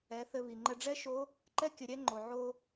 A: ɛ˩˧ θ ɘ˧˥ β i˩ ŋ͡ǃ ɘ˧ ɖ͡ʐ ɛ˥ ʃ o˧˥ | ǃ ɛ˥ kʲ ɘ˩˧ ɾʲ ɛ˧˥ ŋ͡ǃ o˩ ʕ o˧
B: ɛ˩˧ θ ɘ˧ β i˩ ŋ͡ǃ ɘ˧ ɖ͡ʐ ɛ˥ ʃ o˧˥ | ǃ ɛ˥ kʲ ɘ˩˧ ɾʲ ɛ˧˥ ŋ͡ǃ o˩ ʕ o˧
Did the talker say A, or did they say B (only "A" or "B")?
B